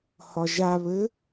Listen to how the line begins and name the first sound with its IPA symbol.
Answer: h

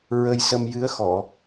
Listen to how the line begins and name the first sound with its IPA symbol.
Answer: ɹ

